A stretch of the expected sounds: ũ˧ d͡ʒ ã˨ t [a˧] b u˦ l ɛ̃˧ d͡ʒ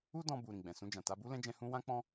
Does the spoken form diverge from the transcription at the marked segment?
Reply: no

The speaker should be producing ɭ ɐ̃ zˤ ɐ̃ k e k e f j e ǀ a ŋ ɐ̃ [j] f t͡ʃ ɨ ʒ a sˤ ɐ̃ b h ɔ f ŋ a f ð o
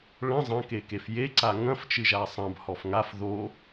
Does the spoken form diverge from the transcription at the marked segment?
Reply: yes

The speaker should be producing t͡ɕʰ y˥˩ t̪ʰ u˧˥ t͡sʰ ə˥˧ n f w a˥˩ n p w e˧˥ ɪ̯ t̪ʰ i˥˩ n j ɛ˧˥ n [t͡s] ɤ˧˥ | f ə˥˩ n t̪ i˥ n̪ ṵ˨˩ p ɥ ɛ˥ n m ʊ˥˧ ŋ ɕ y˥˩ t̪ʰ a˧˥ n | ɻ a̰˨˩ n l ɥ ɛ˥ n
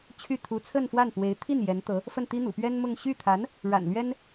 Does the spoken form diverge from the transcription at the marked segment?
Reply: yes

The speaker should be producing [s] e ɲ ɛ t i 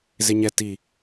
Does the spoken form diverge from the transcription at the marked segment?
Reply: yes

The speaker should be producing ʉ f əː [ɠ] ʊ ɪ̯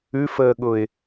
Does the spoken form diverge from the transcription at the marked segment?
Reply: no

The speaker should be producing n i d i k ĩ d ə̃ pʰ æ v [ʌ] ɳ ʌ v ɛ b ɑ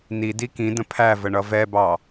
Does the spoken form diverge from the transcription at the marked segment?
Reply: yes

